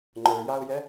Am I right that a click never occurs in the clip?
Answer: no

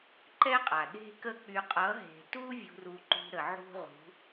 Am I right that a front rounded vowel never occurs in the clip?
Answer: no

